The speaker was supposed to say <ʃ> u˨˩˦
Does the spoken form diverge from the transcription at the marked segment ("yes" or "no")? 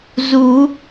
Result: yes